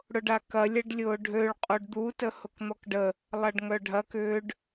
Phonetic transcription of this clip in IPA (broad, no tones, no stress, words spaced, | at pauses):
ɽʊɖakɐ lʲɐɖlʲʊːɖʱøɭ qʼoɖd̪u təhʊkn̪ɔkɖə | lˠɐɖŋœɖʱɐk ʏːɖ